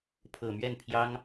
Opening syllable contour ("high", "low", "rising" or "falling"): low